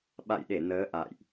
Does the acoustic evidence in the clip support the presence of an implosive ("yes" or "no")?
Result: yes